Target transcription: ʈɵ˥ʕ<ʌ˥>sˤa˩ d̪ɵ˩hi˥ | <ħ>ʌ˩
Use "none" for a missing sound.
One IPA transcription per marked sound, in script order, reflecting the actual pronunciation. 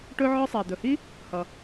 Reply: ɒ˥, h

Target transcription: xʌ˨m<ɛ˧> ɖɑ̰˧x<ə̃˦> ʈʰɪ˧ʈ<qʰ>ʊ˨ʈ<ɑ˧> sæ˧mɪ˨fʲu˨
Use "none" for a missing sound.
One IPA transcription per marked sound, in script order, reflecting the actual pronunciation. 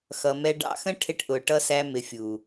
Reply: ɛ˧, ə̃˦, ʔ, ʌ˧

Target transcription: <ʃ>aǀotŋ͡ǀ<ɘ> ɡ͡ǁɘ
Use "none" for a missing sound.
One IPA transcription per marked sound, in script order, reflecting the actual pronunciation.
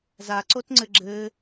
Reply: z, ɘ

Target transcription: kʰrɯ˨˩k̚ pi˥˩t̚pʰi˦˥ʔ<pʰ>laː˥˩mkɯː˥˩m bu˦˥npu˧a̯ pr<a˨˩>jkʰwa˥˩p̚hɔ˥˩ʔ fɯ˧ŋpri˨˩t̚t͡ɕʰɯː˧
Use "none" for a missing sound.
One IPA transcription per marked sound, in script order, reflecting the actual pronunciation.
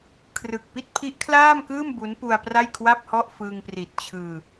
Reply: kʰ, a˥˩

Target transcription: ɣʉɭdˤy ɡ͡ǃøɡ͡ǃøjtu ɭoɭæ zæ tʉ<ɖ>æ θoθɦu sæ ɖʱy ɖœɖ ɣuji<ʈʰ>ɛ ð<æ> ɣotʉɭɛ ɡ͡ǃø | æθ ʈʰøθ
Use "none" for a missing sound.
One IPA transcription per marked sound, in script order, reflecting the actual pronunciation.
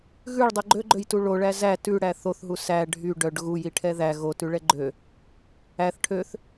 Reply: ɽ, ʈʰ, æ

